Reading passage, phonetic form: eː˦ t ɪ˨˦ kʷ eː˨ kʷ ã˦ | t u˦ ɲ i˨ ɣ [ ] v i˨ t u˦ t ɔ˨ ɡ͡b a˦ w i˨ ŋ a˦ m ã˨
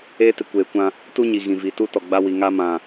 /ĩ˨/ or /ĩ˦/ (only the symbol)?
ĩ˨